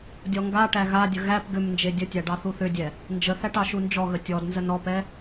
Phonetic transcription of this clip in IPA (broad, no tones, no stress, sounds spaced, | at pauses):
dʲ ɔ ŋ ɡ a ʈ æ ɣ a dʲ ə ɣ æ p ɡ ʏ m n d͡ʒ e dʲ ə tʲ æ ɖ ɑ θ u θ ʏ dʲ ɛ | n d͡ʒ ə θ æ ʈ ɑ ʃ u n d͡ʒ ɔ ɣ ə tʲ ɔ d n z ə n ɔ p ɛ